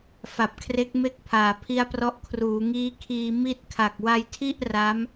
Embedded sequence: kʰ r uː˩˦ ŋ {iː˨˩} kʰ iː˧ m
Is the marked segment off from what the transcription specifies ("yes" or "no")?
yes